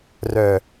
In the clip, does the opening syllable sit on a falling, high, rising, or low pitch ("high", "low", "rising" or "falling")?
low